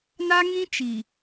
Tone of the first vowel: high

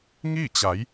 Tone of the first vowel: falling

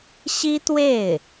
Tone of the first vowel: high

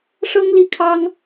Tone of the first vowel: high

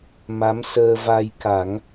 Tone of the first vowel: rising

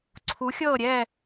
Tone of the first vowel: rising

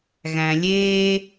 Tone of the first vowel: low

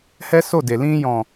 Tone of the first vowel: high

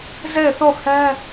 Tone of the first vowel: falling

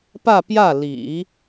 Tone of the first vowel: falling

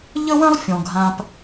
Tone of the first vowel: high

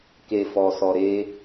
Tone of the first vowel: low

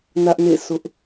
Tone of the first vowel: high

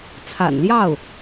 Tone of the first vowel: low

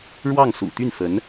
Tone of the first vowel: falling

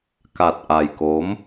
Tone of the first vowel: low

